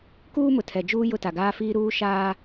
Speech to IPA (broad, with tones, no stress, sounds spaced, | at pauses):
k uː˦ m ʊ˨ tʰ ɛ˨ d͡ʒ uː˦ j ʊ˦ t a˨ ɡ aː˦ f iː˦ ɾ uː˦ ʃ aː˦